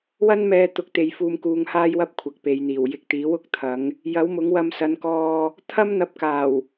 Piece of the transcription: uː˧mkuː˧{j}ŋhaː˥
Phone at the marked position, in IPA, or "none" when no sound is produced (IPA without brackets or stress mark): none